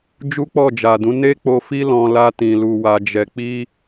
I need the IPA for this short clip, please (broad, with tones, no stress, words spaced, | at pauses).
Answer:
d͡ʒu˦k͡pɔ˦˨d͡ʒa˨dũ˨˦ ne˦k͡po˧ fi˧lɔ̃˨ la˧tĩ˨ lu˨wa˨d͡ʒɛ˨k͡pi˧